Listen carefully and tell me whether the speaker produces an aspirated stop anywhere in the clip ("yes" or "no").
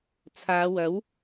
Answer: yes